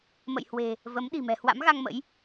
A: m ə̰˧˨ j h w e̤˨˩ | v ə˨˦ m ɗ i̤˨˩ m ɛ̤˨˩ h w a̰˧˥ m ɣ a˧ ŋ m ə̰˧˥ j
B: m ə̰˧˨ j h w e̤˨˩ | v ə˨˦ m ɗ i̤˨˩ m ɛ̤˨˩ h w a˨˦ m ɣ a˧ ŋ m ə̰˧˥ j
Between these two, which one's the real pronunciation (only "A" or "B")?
A